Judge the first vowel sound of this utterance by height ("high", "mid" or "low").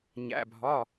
low